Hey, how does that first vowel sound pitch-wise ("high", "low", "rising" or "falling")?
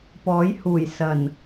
rising